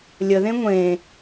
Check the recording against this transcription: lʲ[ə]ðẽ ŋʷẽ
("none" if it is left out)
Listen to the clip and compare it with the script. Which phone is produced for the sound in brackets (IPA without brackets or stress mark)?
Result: ə